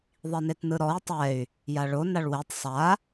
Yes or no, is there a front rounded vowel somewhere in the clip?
yes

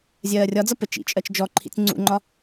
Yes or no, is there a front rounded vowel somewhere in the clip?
no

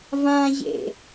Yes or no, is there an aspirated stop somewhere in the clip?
no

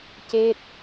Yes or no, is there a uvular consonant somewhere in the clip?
no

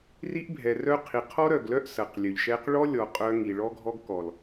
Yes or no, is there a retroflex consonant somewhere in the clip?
yes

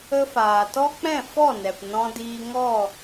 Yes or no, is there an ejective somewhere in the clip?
no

